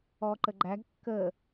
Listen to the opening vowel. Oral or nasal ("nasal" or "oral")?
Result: oral